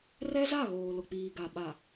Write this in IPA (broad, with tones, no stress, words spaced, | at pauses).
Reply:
rɛ˦za˦˨ ɣoː˨lʊ˨k͡piː˨ɡa˨ ɓa˨